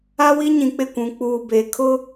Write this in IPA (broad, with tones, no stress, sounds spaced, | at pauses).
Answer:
a˦ w i˦ ɲ ĩ˨ k͡p ɪ˦˨ kʷ ũ˨ k͡p uː˨ b eː˨ kʰ ʊ˦